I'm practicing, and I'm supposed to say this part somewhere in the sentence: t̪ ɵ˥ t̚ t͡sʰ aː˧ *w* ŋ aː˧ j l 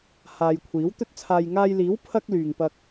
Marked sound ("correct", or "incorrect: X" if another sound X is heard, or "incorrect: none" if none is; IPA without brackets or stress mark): incorrect: j